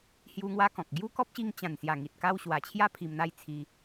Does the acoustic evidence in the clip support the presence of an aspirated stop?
yes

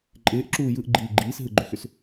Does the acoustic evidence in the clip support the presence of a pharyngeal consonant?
no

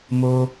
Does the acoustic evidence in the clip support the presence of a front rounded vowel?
no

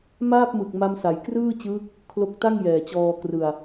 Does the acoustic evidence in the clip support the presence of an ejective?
no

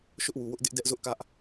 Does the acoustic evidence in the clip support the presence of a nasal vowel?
no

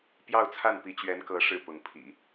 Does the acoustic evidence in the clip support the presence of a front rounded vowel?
no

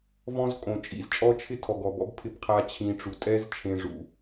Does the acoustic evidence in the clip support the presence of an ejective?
yes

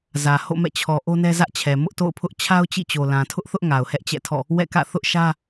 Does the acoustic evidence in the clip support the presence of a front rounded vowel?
no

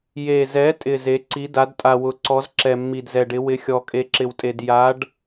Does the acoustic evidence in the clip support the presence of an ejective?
yes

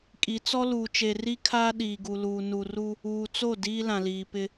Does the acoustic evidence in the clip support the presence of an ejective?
yes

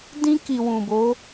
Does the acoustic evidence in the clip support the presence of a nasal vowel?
yes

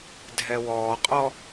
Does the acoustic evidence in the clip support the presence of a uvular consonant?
yes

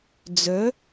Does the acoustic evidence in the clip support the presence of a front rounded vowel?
yes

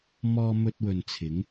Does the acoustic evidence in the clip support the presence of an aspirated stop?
yes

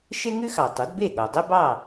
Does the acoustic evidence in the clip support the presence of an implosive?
yes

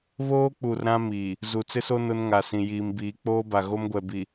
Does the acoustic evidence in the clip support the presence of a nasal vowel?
yes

